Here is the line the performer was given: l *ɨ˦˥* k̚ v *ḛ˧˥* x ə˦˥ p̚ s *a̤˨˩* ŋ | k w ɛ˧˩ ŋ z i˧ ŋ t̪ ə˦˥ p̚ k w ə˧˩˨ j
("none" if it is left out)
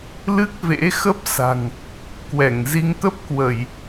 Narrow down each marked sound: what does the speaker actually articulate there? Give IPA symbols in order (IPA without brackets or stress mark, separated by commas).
ɨ˦˥, ḛ˧˥, a̤˨˩